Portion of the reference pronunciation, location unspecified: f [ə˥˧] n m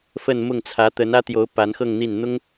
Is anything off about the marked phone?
no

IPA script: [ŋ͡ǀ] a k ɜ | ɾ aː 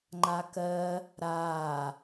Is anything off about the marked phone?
yes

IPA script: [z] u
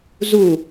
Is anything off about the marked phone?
no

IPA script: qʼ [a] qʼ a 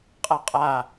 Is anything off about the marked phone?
no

